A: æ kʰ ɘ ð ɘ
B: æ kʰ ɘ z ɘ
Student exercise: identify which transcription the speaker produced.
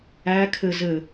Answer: B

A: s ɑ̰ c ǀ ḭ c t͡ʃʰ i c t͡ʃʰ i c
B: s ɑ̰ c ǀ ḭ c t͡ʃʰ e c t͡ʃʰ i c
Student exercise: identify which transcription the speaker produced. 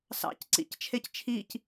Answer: B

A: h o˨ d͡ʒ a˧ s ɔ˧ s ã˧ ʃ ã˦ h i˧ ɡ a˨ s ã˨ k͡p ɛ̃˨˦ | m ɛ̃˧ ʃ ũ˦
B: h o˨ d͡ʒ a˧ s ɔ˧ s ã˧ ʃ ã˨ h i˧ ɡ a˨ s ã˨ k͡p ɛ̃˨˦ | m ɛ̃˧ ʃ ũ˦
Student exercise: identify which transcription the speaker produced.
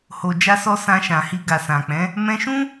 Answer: B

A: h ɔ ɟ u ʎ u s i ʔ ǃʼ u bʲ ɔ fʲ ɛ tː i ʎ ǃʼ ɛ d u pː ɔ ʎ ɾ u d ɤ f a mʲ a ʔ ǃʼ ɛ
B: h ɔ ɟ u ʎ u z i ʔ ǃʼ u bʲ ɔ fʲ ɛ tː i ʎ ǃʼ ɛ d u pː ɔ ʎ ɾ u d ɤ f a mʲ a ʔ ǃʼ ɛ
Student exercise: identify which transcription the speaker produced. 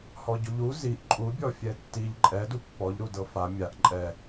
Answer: B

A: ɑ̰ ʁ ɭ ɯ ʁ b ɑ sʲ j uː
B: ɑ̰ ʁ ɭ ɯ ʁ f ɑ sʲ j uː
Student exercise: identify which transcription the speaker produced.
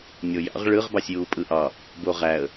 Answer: A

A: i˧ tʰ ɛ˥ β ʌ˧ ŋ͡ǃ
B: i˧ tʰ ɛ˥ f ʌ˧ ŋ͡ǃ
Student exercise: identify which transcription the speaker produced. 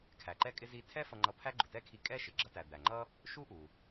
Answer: B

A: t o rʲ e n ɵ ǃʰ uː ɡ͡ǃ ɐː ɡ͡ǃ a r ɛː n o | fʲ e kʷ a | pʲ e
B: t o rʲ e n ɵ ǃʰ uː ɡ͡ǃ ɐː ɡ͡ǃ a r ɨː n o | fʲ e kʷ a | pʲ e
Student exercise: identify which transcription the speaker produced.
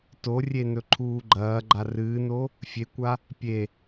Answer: B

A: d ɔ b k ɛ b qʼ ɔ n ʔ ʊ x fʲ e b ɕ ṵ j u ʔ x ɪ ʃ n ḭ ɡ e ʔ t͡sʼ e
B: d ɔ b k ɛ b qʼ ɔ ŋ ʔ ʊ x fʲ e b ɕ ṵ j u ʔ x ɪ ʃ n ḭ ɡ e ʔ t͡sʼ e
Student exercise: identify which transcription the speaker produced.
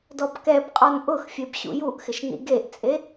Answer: A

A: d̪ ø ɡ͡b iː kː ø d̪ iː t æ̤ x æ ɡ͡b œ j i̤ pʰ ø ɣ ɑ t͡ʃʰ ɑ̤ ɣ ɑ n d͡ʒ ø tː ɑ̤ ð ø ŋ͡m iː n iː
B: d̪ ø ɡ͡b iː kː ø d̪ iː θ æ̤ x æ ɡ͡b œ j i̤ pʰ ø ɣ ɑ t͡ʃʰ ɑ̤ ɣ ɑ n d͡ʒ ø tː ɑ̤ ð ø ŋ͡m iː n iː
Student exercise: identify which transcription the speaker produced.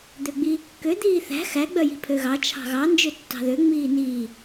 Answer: B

